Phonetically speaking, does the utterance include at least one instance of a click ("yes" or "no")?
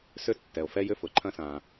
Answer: yes